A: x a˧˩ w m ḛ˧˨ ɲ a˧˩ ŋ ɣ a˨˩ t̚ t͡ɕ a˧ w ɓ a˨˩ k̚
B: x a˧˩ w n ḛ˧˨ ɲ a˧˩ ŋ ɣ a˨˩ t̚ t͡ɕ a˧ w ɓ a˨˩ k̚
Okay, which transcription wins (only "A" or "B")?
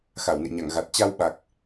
B